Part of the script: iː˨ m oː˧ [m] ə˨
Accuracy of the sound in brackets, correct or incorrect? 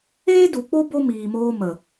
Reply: correct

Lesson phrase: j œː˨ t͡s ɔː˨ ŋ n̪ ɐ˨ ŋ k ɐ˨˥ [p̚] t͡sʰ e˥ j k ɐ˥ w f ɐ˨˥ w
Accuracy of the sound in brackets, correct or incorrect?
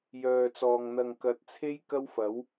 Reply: incorrect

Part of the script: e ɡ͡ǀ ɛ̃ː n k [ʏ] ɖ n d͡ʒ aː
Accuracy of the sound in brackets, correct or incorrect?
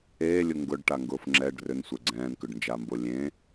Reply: correct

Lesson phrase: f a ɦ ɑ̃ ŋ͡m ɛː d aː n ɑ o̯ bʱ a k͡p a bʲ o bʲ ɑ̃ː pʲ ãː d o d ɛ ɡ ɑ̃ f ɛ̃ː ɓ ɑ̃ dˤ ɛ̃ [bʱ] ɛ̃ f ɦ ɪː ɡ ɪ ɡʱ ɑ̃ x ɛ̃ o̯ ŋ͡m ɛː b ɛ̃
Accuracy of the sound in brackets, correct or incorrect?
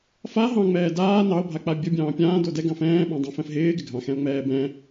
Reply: incorrect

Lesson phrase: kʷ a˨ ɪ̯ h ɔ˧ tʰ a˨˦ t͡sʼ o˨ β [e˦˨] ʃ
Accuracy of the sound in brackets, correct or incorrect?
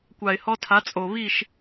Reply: incorrect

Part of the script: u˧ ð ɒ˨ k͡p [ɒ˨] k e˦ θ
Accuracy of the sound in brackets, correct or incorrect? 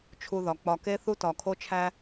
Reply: incorrect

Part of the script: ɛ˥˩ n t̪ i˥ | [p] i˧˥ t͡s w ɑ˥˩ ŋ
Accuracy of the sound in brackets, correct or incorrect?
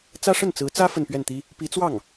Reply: correct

